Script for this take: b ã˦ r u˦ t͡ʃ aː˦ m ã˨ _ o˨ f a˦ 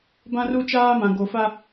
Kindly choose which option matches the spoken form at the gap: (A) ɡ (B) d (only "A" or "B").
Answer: A